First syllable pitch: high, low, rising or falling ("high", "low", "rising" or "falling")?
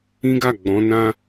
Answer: high